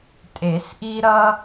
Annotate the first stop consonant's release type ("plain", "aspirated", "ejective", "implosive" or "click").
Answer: ejective